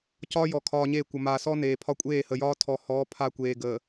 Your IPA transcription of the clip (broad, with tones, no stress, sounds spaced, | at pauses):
c ɒː˦ j ɔ˨ kʰ ɒː˨ ɲ e˦˨ kʷ ə˨ m aː˨ s ɔ˦ n eː˨ pʰ ɒ˦ kʷʼ eː˦˨ h ə˨ j ɒː˦ tʰ ɔ˨ h ɔː˨˦ pʰ a˦ kʷ eː˨ ɡ əː˨